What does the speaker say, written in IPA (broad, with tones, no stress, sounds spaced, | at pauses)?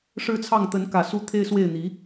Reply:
ʂ ɻ̩˥˧ t͡sʰ ɑ˥˩ ŋ t̪ ə˧˥ n k ä˨˩ s u˥˩ t̪ʰ e˥ ɪ̯ s w e˥˩ ɪ̯ n̪ i˧˥